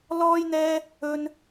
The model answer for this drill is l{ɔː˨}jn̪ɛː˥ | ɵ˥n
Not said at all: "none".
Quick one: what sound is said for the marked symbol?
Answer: ɔː˥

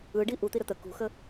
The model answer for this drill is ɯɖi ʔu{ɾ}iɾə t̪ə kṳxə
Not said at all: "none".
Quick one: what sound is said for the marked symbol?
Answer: t̪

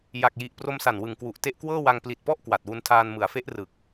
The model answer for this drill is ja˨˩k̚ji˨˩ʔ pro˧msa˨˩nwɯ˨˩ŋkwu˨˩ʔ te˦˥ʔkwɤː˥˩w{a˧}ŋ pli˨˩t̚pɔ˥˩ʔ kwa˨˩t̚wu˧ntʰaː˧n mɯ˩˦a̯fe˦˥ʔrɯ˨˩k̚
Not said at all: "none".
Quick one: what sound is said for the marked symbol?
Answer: a˧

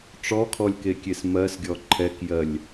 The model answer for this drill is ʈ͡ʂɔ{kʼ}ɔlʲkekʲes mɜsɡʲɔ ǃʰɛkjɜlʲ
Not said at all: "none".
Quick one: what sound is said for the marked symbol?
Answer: kʰ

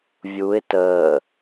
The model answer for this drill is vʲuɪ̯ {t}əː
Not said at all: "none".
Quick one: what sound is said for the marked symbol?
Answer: t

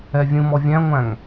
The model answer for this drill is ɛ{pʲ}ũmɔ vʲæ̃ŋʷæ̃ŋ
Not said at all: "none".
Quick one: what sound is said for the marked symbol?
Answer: vʲ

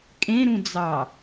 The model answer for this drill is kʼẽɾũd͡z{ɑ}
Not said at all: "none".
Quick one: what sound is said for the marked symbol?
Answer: ɑ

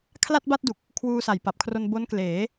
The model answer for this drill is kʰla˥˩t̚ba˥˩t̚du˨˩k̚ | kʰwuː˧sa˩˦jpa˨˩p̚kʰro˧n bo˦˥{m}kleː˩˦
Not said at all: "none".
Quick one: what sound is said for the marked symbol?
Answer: n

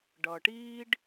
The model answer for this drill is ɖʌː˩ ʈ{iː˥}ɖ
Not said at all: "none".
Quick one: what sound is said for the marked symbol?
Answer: iː˥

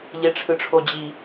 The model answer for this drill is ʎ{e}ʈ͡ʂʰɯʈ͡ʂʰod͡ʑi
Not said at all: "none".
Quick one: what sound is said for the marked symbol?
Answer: e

